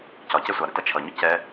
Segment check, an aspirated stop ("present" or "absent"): present